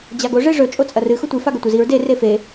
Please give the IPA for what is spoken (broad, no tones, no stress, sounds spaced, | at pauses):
d͡ʑ a ɡ o ʐ e ʐ ɵ t͡ʃʼ o t͡sʼ ɐ r ɨ x u tʷ i f a ɡ ɵ tʷ ɨ z i ɹ d e r e f e